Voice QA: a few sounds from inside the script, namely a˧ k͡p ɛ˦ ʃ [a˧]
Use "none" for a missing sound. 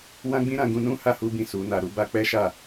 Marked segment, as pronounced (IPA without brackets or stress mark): a˦˨